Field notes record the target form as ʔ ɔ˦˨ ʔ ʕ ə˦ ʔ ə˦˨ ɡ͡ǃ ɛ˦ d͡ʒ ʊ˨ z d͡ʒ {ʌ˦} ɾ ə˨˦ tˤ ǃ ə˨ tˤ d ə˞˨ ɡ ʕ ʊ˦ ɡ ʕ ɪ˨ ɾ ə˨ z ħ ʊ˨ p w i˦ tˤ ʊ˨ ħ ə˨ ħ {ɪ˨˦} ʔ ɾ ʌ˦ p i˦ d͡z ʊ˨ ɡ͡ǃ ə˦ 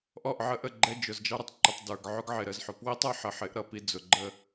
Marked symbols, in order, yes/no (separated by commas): no, yes